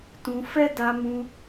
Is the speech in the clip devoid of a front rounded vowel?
yes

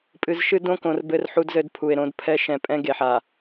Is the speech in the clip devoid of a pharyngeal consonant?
no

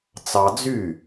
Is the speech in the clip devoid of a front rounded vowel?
no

